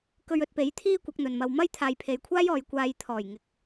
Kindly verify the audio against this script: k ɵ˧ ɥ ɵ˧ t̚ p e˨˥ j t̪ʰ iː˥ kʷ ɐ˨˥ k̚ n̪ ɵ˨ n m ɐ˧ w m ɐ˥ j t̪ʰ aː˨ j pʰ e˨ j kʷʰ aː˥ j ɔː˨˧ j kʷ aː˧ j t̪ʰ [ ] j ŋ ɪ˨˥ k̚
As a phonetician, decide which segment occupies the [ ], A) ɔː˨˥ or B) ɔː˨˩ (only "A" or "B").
B